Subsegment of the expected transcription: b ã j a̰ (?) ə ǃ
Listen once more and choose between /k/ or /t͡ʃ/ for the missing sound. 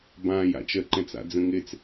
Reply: t͡ʃ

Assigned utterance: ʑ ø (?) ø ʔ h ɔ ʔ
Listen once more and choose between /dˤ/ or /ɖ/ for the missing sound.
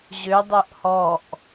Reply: dˤ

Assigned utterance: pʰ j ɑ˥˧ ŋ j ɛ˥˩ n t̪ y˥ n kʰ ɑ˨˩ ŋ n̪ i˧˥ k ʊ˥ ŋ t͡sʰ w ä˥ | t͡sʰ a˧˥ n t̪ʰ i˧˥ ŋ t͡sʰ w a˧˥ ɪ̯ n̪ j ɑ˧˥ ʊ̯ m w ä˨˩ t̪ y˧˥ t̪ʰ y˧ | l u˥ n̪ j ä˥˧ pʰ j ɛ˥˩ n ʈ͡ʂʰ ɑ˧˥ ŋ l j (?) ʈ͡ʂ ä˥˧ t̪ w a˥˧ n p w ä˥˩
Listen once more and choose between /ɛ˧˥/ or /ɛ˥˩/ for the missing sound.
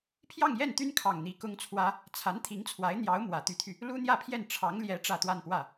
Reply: ɛ˧˥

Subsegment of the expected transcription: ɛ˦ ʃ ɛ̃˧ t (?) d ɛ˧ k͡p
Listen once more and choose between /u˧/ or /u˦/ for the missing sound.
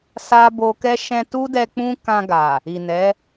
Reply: u˦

